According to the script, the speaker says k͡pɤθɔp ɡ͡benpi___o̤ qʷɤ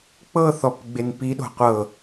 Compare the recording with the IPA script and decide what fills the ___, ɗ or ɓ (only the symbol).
ɗ